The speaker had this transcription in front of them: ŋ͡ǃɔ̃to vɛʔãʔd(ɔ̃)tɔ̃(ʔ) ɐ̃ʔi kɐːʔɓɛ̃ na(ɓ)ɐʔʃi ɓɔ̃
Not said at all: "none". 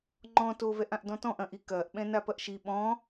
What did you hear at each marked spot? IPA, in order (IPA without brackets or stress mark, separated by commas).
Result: ɔ̃, ʔ, p